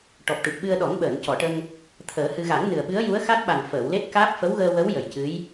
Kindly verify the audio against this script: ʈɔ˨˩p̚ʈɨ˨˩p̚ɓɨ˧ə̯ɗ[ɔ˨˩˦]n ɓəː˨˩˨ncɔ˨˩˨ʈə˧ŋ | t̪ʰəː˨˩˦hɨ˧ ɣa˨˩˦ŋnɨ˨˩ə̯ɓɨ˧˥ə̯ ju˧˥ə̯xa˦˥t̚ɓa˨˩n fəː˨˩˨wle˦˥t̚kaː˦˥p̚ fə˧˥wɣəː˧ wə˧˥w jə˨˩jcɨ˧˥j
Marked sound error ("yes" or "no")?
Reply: no